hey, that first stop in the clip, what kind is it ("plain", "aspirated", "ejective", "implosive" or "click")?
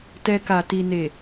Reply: plain